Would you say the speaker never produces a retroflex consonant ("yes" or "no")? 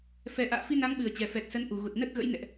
yes